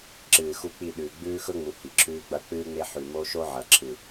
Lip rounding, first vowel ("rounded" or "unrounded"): unrounded